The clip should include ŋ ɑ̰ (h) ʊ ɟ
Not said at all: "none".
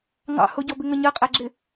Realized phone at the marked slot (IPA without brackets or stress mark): h